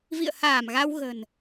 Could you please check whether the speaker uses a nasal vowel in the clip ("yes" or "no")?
no